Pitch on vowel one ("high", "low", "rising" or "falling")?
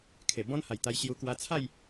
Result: low